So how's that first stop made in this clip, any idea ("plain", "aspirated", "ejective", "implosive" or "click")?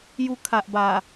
aspirated